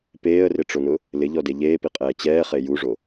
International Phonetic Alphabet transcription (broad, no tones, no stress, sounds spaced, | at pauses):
p eː ə̯ r ɪ ʈ͡ʂ o n ʊ | l ɪ ʎ ɔ d e ʎ eː p i qʼ ɛː t͡ɕ ɛː χ e j u ʐ o